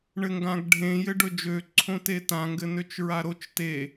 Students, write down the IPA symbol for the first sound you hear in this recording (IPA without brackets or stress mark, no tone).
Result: ɳ